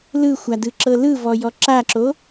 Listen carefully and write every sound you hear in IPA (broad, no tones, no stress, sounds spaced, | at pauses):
l ɯ xʷ a d ɯ ǁ ɤ l ɯ v ɔ j ɔ ǁ a ǁ o